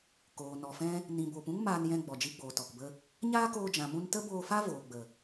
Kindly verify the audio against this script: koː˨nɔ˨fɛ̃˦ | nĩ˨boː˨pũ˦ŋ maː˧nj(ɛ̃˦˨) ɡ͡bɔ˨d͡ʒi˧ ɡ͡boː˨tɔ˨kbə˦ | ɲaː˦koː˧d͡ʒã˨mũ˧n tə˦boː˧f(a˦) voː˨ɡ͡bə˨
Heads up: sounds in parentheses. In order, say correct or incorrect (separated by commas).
incorrect, correct